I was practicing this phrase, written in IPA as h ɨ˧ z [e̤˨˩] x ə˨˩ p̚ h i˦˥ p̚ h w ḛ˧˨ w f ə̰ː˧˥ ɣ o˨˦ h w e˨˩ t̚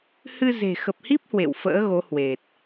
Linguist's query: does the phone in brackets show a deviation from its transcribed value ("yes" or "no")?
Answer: no